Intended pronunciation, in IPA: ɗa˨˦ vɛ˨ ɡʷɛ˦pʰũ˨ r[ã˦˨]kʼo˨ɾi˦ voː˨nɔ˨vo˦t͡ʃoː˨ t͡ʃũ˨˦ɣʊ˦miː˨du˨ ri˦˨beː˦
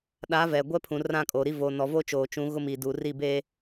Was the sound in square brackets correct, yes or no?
yes